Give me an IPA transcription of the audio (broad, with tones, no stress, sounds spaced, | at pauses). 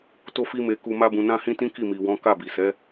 t o˦ f i˦ m e˧ k u˧ m a˦ b ũ˧ n ã˦ h ĩ˦ t ĩ˦ k i˦˨ m i˨ w ɔ̃˨˦ k a˦˨ b i˨ s ɛ˨˦